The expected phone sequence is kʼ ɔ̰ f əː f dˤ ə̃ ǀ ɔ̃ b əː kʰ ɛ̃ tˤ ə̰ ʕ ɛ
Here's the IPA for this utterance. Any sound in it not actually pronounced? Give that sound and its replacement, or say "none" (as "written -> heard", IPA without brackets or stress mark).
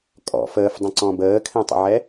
none